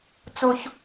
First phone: t͡s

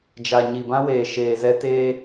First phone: d͡ʒ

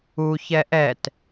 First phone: u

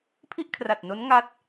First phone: pʰ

